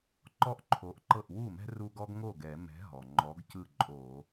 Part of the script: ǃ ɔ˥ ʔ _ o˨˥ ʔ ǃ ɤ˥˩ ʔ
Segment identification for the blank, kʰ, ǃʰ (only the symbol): ǃʰ